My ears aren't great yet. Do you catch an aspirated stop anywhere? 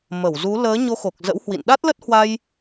no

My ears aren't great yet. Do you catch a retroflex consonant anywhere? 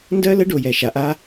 yes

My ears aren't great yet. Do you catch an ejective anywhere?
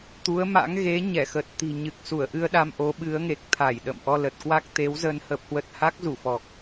no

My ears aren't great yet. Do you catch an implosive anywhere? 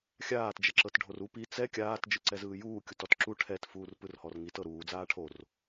no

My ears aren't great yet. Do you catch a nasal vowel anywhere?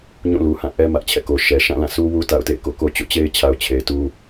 yes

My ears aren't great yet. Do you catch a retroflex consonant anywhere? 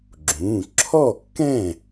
no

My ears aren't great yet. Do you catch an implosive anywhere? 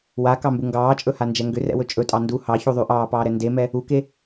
no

